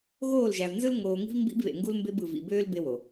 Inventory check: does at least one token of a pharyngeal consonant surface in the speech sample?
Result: no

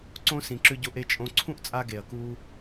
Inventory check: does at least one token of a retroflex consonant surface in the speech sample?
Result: no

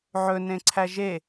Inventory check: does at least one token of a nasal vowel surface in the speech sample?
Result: yes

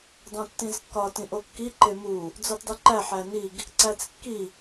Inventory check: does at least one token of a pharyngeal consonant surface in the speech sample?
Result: yes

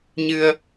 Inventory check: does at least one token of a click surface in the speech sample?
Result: no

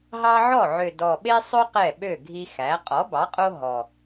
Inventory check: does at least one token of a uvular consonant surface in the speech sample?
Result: yes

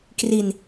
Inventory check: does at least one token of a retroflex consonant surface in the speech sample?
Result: no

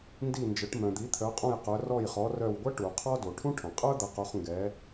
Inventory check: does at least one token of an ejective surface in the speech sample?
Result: yes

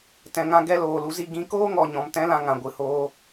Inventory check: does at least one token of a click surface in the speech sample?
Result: no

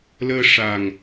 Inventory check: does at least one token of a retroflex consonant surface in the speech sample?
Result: yes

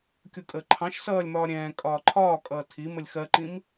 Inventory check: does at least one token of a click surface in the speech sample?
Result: yes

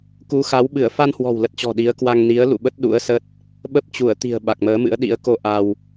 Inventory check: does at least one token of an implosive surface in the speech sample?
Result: yes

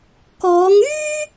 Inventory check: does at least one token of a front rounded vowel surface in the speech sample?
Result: yes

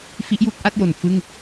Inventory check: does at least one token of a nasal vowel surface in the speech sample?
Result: no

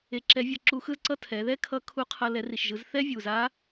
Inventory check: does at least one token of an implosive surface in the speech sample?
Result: no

